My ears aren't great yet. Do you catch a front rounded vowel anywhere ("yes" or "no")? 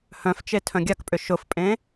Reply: yes